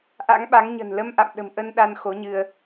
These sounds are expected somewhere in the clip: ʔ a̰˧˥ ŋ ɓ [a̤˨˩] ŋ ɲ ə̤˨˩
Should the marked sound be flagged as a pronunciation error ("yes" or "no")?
yes